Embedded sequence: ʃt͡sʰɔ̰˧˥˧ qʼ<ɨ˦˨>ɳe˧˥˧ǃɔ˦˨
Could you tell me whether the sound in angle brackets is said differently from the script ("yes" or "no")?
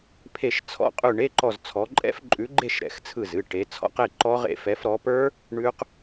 yes